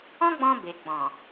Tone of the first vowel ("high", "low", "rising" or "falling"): high